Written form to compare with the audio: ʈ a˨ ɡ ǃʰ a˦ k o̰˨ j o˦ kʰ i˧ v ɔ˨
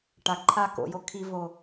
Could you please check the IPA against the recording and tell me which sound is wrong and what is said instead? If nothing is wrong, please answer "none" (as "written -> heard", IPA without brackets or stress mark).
ɔ˨ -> o˨